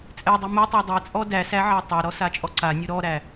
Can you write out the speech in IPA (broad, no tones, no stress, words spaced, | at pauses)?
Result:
t͡sʼɛdˤɛ mʊtˤɛ dˤɛt͡sʼɔ dæsæʕa tˤaɾɔsat͡ʃʼɔ ǀanʲʊ ɾɔɾæ